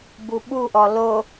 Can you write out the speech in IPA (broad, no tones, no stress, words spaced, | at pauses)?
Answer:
buɓuʔɔ lo